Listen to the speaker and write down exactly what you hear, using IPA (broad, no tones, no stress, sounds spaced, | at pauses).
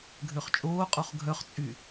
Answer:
ɡʱ ø χ t͡ʃʼ oː qʼ o χ ɡʱ œ χ t͡sʼ y